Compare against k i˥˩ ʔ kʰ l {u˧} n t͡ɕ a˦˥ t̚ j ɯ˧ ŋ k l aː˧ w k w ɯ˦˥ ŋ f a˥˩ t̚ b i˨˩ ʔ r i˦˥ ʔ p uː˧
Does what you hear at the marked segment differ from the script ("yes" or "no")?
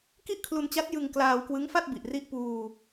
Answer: no